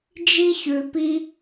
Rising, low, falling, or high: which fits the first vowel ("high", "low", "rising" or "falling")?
high